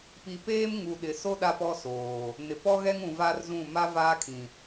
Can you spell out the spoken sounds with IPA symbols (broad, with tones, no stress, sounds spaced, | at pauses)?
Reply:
p i˨ p eː˦ m ŋ u˨ ɗ ɪ˨ s o˦ ɗ a˦ p ɔ˦ s oː˨ | n ɪ˨ p ɔ˦ ɣ ɛ˦ ŋ ũ˨ v a˦ r z ũ˦˨ m a˦ v aː˦ kʰ ĩ˨